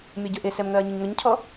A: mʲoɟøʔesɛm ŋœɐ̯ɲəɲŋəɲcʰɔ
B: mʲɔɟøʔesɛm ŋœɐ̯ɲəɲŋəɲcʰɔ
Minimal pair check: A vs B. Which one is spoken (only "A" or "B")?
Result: B